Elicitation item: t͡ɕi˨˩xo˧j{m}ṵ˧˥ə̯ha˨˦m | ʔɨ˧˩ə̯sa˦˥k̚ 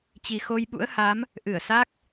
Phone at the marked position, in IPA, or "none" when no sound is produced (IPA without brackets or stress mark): ɓ